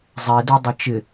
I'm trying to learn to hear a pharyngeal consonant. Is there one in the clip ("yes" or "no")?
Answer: no